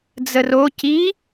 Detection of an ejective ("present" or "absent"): absent